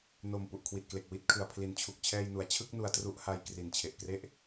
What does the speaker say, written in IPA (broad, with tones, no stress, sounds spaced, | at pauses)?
n o˨˩ m p u˨˩ ʔ kʰ w i˨˩ t̚ k l e˨˩ k̚ w i˥˩ t̚ kʰ ɯ˩˦ a̯ pʰ l i˩˦ n t͡ɕʰ u˨˩ k̚ t͡ɕʰ ɛː˧ j n u˩˦ a̯ t͡ɕʰ ɯ˥˩ k̚ n u˧ a̯ t r u˥˩ ʔ h a˦˥ j k r i˨˩ n t͡ɕʰ e˨˩ ʔ k r e˥˩ ʔ